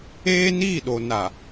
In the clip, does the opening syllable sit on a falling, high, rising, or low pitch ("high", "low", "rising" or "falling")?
high